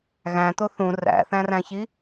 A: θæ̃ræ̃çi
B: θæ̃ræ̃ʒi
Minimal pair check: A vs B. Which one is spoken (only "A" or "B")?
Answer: A